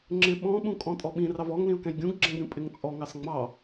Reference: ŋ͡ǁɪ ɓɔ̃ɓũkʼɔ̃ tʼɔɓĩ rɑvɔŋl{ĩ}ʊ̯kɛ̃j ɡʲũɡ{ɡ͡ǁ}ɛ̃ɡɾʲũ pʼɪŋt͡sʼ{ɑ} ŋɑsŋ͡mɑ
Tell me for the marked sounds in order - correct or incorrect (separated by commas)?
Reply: correct, correct, incorrect